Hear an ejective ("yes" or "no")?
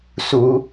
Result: no